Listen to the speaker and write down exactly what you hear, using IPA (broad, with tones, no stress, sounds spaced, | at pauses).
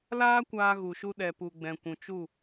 l aː˦ kʷ aː˧ ɣ u˨ ʃ u˧ ɗ ɛ˨ p u˨ ɡ͡b ɛ̃˨ kʷ ũ˨ t͡ʃ u˦˨